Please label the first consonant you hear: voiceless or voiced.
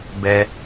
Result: voiced